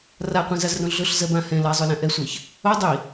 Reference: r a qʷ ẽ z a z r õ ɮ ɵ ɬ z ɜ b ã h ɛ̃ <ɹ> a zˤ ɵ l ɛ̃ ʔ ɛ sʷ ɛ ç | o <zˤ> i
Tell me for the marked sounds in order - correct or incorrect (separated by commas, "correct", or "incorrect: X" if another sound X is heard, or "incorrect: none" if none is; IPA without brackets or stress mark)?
incorrect: l, incorrect: dˤ